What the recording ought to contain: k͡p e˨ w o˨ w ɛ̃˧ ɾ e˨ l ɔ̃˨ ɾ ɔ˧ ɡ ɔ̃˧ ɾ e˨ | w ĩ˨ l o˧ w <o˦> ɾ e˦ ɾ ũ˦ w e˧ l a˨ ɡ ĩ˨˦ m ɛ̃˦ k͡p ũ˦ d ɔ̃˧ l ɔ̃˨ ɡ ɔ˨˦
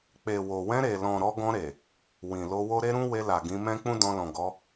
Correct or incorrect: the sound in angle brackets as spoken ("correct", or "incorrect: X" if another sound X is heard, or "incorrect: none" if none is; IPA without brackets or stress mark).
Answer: correct